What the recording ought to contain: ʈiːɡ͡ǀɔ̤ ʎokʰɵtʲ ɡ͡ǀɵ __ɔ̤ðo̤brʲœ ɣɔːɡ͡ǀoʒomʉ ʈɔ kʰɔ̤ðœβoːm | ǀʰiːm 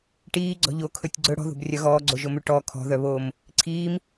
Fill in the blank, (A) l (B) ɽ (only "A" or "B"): B